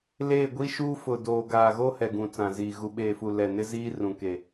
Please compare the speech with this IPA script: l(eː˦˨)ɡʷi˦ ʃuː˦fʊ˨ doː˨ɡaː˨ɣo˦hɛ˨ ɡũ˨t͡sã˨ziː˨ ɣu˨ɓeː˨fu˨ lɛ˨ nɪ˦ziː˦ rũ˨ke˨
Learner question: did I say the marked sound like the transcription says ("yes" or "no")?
yes